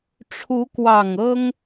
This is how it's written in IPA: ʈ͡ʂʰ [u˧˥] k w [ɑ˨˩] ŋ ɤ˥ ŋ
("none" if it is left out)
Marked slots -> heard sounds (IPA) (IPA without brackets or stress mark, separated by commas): u˧˥, ɑ˨˩